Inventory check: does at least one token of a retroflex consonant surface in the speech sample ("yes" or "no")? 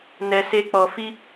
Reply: no